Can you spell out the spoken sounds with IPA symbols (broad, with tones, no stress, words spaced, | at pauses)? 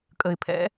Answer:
kʼə˩ɪ̯pʰɛ̰˩˧